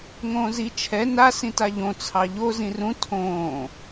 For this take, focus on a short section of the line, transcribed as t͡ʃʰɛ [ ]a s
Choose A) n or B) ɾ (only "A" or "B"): A